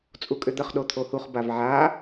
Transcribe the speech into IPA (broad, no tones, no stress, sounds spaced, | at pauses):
t͡sʼ u kʼ ʏ d̪ ə χ ɗ o t̪ʰ o h u χ b a v ʕ a